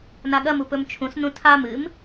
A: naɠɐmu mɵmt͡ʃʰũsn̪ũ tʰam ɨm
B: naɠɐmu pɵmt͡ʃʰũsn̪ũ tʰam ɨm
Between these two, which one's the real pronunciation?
B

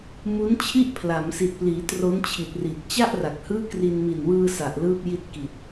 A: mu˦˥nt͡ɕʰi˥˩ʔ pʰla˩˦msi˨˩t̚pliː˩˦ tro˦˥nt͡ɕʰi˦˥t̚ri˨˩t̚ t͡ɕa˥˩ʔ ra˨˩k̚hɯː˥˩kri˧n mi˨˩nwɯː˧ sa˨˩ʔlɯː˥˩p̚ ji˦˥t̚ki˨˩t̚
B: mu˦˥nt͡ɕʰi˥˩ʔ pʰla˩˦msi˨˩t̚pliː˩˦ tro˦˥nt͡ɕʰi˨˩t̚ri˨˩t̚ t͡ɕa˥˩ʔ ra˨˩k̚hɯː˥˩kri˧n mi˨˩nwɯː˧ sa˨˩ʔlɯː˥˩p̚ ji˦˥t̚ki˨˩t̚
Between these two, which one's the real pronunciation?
B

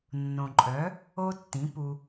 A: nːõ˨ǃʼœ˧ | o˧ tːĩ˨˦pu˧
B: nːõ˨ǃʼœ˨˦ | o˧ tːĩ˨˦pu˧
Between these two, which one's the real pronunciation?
B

